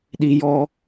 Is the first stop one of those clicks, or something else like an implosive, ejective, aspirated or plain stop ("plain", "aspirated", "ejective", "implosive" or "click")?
implosive